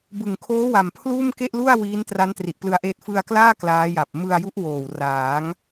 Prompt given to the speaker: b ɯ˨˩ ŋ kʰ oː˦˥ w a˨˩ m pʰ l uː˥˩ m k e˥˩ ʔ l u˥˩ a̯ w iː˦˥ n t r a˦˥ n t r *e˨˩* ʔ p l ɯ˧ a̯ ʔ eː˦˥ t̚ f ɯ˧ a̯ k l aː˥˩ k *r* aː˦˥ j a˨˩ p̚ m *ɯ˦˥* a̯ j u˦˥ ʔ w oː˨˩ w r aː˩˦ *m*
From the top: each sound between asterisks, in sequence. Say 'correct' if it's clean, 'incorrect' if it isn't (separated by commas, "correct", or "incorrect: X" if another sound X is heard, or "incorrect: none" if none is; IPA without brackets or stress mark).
incorrect: i˨˩, incorrect: l, incorrect: ɯ˧, incorrect: ŋ